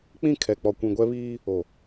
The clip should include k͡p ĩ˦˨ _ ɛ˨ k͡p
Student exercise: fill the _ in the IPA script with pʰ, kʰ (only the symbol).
kʰ